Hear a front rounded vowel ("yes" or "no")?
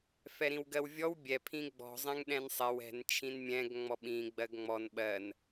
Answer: no